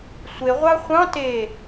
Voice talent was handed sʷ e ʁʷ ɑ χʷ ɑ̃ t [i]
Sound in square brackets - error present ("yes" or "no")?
yes